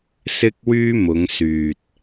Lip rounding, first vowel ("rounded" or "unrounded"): unrounded